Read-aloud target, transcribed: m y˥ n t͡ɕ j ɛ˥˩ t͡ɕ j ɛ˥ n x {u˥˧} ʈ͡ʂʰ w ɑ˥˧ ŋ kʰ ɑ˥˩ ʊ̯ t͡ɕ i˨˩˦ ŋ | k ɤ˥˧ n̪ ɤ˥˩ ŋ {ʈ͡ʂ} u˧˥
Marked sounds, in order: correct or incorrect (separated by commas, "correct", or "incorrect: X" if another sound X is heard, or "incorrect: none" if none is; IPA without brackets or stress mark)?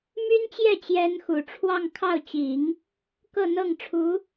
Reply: incorrect: u˨˩, incorrect: ʈ͡ʂʰ